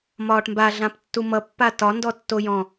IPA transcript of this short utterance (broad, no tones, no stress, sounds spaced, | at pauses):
m ɒː ʈ m b a ɮ ã p tː u m ʌ pː a t ɒ n d ɔ tː o j ɔ̃